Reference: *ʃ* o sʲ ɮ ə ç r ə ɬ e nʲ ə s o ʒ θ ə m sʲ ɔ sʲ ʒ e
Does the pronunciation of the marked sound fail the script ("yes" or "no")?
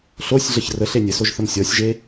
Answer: yes